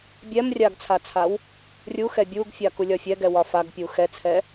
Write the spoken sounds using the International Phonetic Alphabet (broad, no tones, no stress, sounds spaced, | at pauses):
bʲ ɛ m rʲ a ɡ t͡sʰ a t͡sʰ a w | rʲ u x ɛ bʲ u ɡ fʲ a k u lʲ ɒ fʲ ɛ ɡ ɛ w ɒ f a ɡ pʲ u x ɛ t͡sʰ ɛ